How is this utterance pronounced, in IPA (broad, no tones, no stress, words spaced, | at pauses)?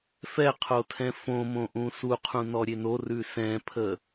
fɛqʰotʰɛ̃ fõmõ ʔũsuqʰũ nɔɾʲeno rʉsɛ̃pʰə